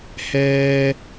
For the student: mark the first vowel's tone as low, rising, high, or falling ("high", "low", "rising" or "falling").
high